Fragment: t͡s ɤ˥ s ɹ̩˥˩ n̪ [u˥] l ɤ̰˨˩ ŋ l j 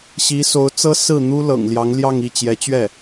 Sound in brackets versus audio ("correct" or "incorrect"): correct